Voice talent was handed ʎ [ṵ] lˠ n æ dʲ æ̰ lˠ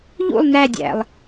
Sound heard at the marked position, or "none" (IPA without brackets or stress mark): ṵ